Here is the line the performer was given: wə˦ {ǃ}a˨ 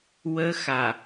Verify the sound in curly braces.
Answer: incorrect: x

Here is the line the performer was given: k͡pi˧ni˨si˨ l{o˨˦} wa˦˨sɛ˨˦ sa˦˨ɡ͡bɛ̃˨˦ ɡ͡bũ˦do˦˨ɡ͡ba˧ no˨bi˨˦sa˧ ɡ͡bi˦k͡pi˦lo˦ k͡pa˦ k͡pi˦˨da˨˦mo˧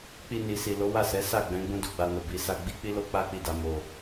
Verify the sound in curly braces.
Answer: correct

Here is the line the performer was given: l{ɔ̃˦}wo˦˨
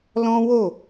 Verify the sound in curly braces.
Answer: correct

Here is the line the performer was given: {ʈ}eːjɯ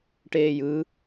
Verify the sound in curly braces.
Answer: correct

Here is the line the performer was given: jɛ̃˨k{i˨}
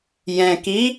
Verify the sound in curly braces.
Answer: incorrect: i˨˦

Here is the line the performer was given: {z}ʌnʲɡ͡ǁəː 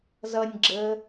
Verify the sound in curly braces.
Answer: correct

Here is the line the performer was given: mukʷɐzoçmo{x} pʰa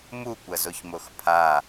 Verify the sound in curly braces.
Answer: correct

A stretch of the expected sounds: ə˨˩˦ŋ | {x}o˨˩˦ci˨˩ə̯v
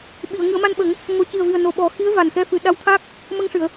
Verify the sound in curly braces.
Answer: incorrect: ŋ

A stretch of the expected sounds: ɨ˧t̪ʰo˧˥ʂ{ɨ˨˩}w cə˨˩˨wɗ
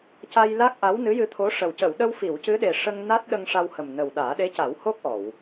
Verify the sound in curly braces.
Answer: incorrect: ə˨˩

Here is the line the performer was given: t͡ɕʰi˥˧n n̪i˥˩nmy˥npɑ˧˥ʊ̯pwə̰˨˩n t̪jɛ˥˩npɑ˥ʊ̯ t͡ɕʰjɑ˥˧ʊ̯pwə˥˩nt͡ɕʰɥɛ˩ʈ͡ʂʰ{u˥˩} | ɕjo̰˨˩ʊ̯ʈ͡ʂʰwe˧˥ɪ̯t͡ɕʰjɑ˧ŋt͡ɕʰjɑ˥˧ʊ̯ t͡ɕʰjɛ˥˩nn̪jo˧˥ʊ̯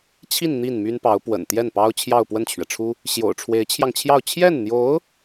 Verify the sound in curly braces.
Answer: incorrect: u˥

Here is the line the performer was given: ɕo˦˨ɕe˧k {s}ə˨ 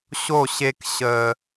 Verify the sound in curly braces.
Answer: incorrect: ɕ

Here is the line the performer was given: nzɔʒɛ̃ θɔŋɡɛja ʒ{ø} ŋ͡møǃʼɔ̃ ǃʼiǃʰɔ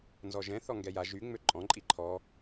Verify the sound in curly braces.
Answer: incorrect: y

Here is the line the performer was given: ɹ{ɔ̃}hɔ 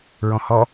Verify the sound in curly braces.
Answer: correct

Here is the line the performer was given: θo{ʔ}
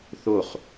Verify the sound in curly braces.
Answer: incorrect: χ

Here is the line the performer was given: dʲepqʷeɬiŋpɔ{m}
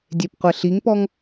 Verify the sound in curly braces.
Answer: incorrect: ŋ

